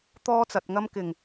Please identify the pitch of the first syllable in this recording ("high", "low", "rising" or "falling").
high